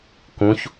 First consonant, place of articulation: velar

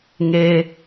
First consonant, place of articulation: velar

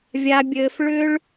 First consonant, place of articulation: labial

